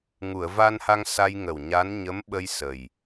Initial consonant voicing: voiced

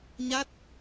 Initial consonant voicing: voiced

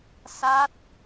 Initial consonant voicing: voiceless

